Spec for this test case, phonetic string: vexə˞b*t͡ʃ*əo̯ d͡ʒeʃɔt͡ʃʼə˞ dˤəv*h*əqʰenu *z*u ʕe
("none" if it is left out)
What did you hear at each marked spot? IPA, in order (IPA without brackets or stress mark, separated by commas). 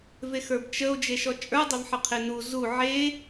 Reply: t͡ʃ, ħ, z